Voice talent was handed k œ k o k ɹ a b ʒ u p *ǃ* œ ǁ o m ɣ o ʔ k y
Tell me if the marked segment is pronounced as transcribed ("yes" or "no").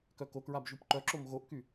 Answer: yes